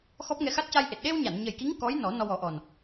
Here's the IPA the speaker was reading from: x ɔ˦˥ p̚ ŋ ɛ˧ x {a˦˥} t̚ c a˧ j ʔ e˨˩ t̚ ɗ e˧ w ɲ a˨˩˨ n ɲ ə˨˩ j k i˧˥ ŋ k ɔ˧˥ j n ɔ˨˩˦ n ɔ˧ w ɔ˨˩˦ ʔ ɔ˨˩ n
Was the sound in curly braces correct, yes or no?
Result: yes